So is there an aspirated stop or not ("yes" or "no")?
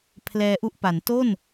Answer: yes